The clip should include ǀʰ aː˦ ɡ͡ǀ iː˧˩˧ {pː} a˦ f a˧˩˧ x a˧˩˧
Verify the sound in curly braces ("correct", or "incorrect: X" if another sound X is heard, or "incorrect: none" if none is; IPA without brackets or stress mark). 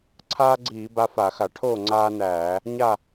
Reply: incorrect: b